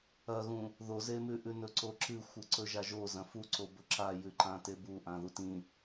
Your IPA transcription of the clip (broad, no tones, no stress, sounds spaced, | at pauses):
ɐ ɣ ũ | ð o z e m ʉ ʔ ʉ n ɵ ǀ o ǁ ɨ xʷ ɨ ǀ ɵ ʒ a ʒ o z ɐ̃ f u ǀ o b ɵ ǁ a j ʉ ǃ ã t e b u ʔ ã ð u t ĩ